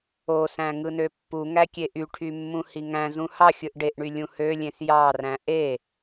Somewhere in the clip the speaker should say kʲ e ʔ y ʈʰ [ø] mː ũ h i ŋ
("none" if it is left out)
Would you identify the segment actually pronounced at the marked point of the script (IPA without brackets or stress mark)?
y